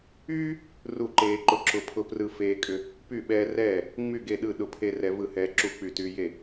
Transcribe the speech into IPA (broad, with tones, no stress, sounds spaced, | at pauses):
yː˦ | r u˥˨ ǃ eː˦ ǃ ʊ˦ ǁ ʊ˦ pʰ ʊ˦ p r ɯ˦ f eː˦ kʼ ʏ˦ | p y˥˨ ɓ ɛː˦ r ɛː˥˨ | ŋ͡m y˥˨ ɡ e˥˨ ɗ ɯ˥˨ ɗ ʊ˦ pʰ e˦ r ɛ˦ v ɯ˥˨ h ɛː˦ ǁ u˥˨ k͡p y˥˨ t y˦ j e˥˨